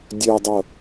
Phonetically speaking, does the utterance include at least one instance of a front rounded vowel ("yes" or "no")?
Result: yes